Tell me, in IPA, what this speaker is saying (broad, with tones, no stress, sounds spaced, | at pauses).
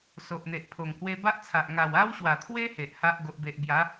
s o˨ ʔ n̪ e˨ ʔ pʰ o˨˩ ŋ h w e˧ b a˦ ʔ t͡sʰ a˨ ʔ ŋ a˨˩ w a˦ w ɕ w a˨˩ t̪ʰ w e˦ h e˨ ʔ h a˦ ʔ ɡ o˨ ʔ b e˨ ʔ b j a˨˦